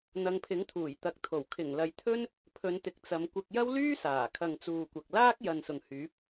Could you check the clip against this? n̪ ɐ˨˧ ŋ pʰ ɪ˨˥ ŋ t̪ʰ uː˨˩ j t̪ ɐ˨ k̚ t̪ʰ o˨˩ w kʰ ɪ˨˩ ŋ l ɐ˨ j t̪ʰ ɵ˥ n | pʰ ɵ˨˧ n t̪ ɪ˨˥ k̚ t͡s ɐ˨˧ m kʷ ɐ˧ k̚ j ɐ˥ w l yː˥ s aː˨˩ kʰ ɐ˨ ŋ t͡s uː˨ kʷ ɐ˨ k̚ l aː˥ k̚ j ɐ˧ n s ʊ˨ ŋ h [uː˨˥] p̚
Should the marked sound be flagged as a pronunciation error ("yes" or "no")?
yes